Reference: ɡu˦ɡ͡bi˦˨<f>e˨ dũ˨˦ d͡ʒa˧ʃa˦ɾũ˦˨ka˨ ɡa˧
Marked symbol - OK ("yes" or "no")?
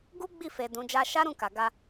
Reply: yes